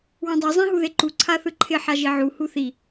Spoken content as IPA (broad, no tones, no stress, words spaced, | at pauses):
wãdˤi zˤĩɦuðeǃu ǀʰaθɯǃʰɪ ħaʒiʕu huθi